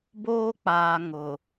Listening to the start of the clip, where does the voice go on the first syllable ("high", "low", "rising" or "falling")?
high